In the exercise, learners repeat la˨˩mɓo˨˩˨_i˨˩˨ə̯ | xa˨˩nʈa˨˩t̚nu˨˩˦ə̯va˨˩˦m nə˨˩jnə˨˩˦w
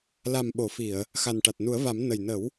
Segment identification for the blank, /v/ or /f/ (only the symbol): f